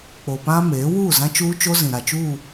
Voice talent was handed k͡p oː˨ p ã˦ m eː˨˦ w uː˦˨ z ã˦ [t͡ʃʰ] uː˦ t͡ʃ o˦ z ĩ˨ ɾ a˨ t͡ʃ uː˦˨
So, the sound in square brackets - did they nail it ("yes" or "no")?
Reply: no